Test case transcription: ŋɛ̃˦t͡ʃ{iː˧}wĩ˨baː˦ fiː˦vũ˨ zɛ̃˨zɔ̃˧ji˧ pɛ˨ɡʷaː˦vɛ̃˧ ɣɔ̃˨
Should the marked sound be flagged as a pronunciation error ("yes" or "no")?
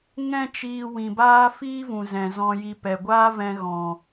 no